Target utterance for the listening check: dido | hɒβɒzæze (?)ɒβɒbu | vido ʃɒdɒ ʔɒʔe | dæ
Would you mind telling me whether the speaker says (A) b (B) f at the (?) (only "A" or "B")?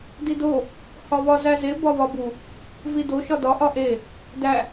A